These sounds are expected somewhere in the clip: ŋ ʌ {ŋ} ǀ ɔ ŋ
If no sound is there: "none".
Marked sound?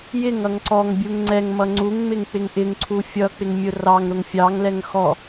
ŋ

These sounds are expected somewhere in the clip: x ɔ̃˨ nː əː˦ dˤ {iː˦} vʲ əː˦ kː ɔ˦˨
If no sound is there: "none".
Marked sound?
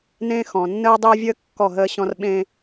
ɪː˦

